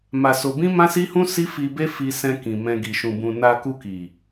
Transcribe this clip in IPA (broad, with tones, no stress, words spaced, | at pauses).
ma˧so˧ bĩ˦mã˦si˦hũ˦ si˦fi˧be˦ fi˧sɛ̃˧ kĩ˨ mɛ̃˧ɡi˨ ʃũ˨bũ˨ na˧ ku˧ki˨